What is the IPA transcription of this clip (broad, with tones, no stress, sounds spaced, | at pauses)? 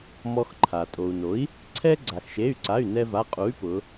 m ɔ˧ x ǃʰ a˩ tʼ o˩ u̯ n o˩˥ i̯ | ǀʰ ɛ˧ ɡ͡ǀ a˩ x ʃ e˩˧˩ y̯ ǀ a˩˧˩ y̯ n ɛ˧ v a˩˧˩ qʼ u˩˥ y̯ p ʊ˩˧